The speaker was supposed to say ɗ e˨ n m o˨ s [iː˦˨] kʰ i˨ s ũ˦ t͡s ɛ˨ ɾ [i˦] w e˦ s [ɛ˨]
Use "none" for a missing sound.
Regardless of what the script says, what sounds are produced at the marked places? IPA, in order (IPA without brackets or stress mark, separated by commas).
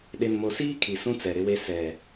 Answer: iː˦, ɪ˦, ɛ˨